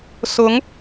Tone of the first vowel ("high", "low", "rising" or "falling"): rising